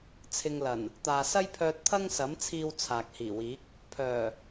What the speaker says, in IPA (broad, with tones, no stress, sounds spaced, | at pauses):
t͡sʰ ɪ˧ ŋ l ɐ˨˩ n | t̪ aː˨ s ɐ˥ j pʰ œː˧ t̚ t̪ʰ ɐ˥ ŋ s ɐ˨˥ m t͡sʰ iː˧ w t͡sʰ aː˨ k̚ h iː˨˩ w iː˨˥ k̚ | pʰ œː˨˩